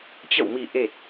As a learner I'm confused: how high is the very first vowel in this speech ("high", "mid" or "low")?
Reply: mid